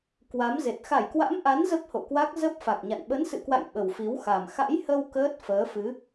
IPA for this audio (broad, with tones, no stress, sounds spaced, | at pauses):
k w a˨˦ m z e˨˩ t̚ x a˧˩ j k w a̰˧˥ m ʔ a˨˦ n z ə˦˥ p̚ h o̰˧˨ k w a˦˥ k̚ z ə˦˥ p̚ f a˨˩ k̚ ɲ a̰˧˨ n ɓ ə˨˦ n s ɨ̰˧˨ k w a̰˧˨ j ɓ ə˨˩ w f i˨˦ w x a˨˩ m x a̰˧˥ j h ə˧ w k əː˦˥ t̚ f əː˨˦ f ɨ˨˦